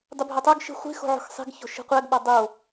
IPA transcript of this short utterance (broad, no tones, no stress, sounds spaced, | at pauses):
dˤ u bʱ o tˤ o ɡ ʃ i̤ χʷ i̤ x o̤ ʕ o̤ x sˤ i̤ ɡ ç o̤ ʃ i̤ qʷ æ ɡ ɓ ɒ dˤ o